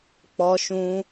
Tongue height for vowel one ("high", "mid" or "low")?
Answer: mid